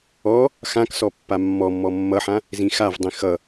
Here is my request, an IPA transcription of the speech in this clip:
ɔ | x ã k s ɔ pː a mː ɔ mː ɔ mː ʌ ħ ã | z ĩ x a v dˤ ĩ x ʌ

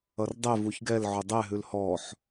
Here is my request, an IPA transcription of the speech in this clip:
ʌ r dˤ ɛ v u ç ɡ ɛ l ʕ ʊ dˤ ɛ ɦ ʉ l h ɔ ħ

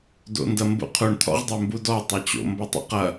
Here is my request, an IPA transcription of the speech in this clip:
d o̰ n d ɐ m b ṵ qʰ u ɳ t̪ʰ ɔ̰ ʁ dˤ œ m b u d ɔ tˤ ɐ t͡ɕ o̰ m b ɐ tˤ ṵ q ɐ

